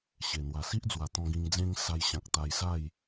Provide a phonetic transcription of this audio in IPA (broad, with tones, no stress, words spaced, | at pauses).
ɕe˨˩ n̪wa˨˩si˦ʔd͡zwa˨˩t̪ɔ̃˧ ɡĩ˧ŋd͡zẽ˦ŋ sa˧jɕã˨k̚ t̪a˧jsa˥˧j